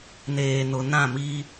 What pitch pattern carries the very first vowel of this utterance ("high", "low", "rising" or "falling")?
low